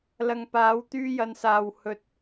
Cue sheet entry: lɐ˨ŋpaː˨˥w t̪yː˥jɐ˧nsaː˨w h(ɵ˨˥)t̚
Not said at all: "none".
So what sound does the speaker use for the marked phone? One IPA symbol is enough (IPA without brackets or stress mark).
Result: ɵ˨